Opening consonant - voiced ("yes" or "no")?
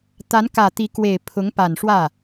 no